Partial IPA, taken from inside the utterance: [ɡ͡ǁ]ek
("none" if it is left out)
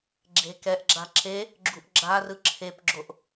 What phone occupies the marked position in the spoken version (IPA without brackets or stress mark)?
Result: ɡ͡ǁ